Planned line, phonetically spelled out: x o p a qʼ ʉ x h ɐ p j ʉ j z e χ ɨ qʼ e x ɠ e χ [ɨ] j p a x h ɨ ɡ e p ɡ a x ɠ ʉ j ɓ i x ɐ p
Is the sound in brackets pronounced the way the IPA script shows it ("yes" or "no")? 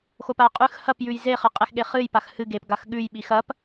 yes